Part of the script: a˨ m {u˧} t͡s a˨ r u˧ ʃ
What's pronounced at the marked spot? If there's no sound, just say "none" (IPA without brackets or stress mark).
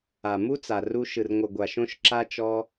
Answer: u˦